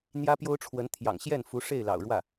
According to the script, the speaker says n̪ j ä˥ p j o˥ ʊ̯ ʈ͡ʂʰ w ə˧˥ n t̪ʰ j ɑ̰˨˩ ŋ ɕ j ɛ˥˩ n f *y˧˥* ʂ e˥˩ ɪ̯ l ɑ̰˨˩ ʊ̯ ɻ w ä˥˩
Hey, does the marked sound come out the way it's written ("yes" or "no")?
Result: no